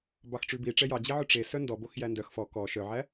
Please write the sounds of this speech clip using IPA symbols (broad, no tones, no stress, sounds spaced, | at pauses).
b ɑ x ʈ͡ʂ ʉ b i ʈ͡ʂ ɛ j ɑ d͡ʑ i ʕ ɵ ʈ͡ʂ e s œ n d ɔ b o x j æ n d œ x f ɔ k ɔ ʃ œ ʕ æ